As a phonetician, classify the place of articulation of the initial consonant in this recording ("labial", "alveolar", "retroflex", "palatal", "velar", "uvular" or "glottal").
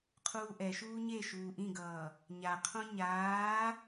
uvular